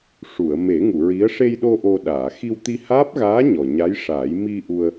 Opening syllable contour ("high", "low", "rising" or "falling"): low